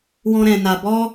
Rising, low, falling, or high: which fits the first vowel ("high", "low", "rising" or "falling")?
high